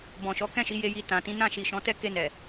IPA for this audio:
b ɔ̃˨ ʃ ɔ˨˦ k ɛ̃˦˨ ʃ i˨˦ j e˧ j i˧ t ã˨ t ĩ˨˦ n ã˦˨ ʃ i˨ ʃ ɔ̃˨˦ t ɛ˦˨ k e˧ n ɛ˨

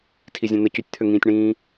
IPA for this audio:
tʰ i zʲ ɛ̃ n̪ ə c y tʲ t̪ʰ ø ŋ ĩː tʲ ɳ ĩː

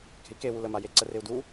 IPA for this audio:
k e̤ i̯ k e w u l ə m a j e ǀ ə r ɪ u̯ d u

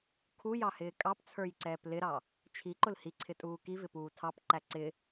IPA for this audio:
kʰ u j ɑ h ɪː kʼ ɑ p t͡sʰ ə˞ j ǀ ɛː p l ɪ ɾ ɑ | t͡ʃʰ i ǃ ʊ l h i ǀʰ ɪ tʼ uː k i v ɪ p uː tʰ ɑ p ǃ æ ǀ ɪ

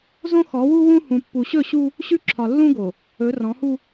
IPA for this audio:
z õ˦ x ɔ˨˦ w u˦ w ũ˦ h ũ˨ pː u˨ ɕ ɵ˦˨ ɕ u˦ | ɕ ʉ˦ ǁʰ ɒ˨ lː ũ˦ ɡ o˨ | ɵ˨˦ r ɔ̃˨˦ h u˦

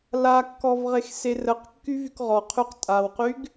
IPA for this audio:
l a kː ɔ v ʁ e x s e r ə q kː y v y k ʁ ɔ qʰ y q tʼ a w q y ɡ

